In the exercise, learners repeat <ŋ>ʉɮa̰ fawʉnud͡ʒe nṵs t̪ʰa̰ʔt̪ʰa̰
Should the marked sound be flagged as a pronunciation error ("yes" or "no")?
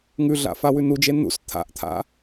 no